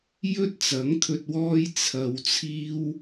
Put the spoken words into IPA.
jɵ˥t̚t͡sɐ˨˥ŋ t̪ʰɵ˧t̚wɔː˥j t͡sʰɐ˧wt͡sʰiː˥w

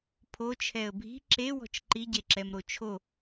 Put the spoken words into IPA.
pʰo t͡ʃʰɛə̯bʱi̤ ǁe wɔ̤t͡ʃǃiɟe ǁɛmɾot͡ʃʰo

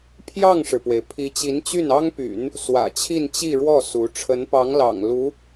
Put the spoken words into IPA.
pʰjɑ˥˩ŋʂɻ̩˩pwe˩ɪ̯ pʰi˧˥t͡ɕi˧˥nt͡ɕy˥˩n ɑ˥ŋpy̰˨˩˦n | swä̰˨˩ t͡ɕʰi˥˧nt͡ɕi˥˧ɻwɔ˥˩ su˧˥ ʈ͡ʂʰə˧˥npɑ˧˥ŋlɑ̰˨˩ŋ lu˧˥

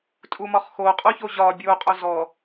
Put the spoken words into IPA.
tʼumɒχxo qʼoçoʑɒ bʲo qʼozɔ

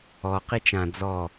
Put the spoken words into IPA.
ɔ qit͡ʃã d͡zɔ

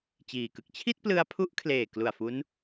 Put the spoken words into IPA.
t͡ɕiː˨˩kɯ˥˩k̚ t͡ɕʰi˥˩t̚plɯ˧a̯pʰu˦˥ʔ kʰleː˨˩ klu˨˩a̯fu˦˥n

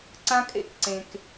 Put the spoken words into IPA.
ǀã˦kʼḛ˦kǀẽ˨k

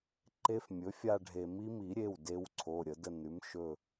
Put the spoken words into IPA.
ǃe˧˥fmʲɵ˩˥ fʲa˦˨ɖʱe˨˩˦mi˧˥ mi˨˩˦ɾʲe˩˧˩w de˧˥wǀʰo˩˧˩ɾʲə˨˩˦ də˦˨ nʉ˩˥m ʃɵ˦˨

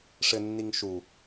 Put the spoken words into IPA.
ʂɘnːiŋ ʃu

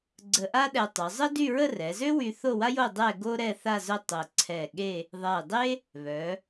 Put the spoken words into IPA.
ɡ͡ǀə˧ʔa˥ɗɛ˧ tˤø˩˧zˤə˥dy˥˧ ɹə˥˧rɛ˩˧zø˥wy˧ θo˥˧wa˥jo˥˧ dˤɛ˥˧ɡo˥ ɾɛ˥˧θa˥˧zœ˥˧ tˤə˧˩ ǀʰɛ˧˩ɠe˥˧ | ðˤɛ˧˩dˤe˥ | βœ˩˧

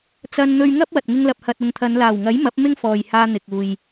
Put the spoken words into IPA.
t͡sɐ˧nn̪ɵ˧ɥŋɐ˥p̚ wɐ˨t̚ŋɪ˥ŋ lɐ˨p̚hɐ˨t̚ʊ˨ŋt̪ʰɐ˨˧n laː˨˩wŋɐ˨˥j mɐ˨˥p̚ mɪ˥ŋ fɔː˨jhaː˧n̪ɪ˨k̚ uː˨j

